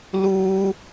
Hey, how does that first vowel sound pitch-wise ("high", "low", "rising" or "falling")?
high